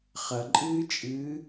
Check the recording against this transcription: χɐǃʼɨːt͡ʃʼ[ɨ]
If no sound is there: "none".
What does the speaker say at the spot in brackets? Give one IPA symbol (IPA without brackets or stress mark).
ɨː